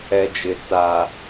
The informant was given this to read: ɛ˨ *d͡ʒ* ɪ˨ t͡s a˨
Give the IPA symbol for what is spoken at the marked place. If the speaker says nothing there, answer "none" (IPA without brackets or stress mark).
d͡ʒ